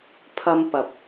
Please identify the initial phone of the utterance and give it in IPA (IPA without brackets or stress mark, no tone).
pʰ